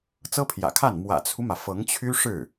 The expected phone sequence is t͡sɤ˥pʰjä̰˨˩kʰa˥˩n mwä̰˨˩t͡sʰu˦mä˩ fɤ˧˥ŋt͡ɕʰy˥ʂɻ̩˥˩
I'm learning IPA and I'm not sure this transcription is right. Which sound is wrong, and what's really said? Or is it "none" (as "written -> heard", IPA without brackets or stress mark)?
none